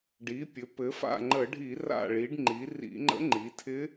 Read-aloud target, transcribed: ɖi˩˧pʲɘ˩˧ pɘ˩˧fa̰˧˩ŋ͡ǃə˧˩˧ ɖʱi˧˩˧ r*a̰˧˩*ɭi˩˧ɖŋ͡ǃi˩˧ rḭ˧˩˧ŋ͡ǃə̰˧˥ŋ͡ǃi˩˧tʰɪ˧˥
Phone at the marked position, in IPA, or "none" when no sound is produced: a̰˧˩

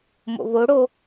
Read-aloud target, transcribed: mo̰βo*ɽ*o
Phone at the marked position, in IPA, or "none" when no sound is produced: ɽ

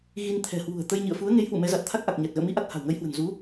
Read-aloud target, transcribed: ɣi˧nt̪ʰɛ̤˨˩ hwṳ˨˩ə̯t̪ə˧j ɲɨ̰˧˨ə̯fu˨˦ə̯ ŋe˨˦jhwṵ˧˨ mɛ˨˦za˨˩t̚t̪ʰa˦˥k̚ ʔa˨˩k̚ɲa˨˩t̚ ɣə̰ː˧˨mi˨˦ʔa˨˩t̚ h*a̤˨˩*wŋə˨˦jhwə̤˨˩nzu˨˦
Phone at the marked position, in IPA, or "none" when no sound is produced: a̤˨˩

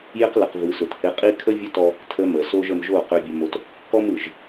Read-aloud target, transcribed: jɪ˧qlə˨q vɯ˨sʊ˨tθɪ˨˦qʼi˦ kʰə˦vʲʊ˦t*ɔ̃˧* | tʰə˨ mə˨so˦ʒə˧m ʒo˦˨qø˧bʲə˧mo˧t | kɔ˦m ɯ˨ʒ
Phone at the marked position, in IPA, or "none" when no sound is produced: ɔ˧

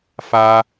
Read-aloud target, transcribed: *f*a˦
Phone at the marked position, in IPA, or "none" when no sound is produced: f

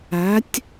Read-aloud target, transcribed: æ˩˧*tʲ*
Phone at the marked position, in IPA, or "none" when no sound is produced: tʲ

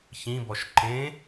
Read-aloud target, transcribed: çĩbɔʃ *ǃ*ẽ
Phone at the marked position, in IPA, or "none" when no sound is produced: ǃ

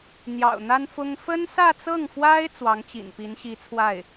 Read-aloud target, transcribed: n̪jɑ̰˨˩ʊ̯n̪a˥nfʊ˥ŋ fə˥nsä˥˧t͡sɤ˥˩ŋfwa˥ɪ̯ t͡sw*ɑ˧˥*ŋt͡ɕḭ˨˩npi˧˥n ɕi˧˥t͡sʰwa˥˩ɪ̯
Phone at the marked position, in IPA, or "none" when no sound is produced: ɑ˧˥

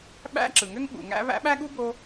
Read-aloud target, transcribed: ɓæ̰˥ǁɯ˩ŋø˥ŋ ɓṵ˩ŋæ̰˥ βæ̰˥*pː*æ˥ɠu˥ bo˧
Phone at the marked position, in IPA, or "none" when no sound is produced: ɓ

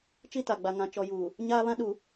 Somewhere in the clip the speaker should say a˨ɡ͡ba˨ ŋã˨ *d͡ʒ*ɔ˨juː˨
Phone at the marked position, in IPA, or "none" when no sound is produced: t͡ʃ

